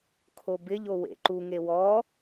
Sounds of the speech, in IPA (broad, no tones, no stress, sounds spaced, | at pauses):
kʰ o b ɪ ʎ o w ḛ ǃ u ŋ e w ɔ